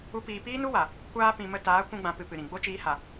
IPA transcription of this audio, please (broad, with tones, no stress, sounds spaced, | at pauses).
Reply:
u˦ p iː˧ p iː˦ n u˦ w a˨ | kʷ aː˧ p ĩ˨ m ə˧ t aː˨˦ kʷ ũ˧ ɡ͡b ã˧ p ɨ˧ p ɨ˨ ɾ ĩ˨ ɡ͡b o˦ t͡ʃ iː˧ h a˨